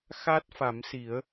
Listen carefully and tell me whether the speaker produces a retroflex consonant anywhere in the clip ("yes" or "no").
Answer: no